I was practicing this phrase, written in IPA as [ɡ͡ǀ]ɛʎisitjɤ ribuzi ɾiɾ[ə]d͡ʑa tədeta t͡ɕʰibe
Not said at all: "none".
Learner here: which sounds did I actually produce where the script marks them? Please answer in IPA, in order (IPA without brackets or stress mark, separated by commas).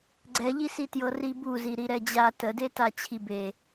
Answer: ɡ͡ǀ, ɛ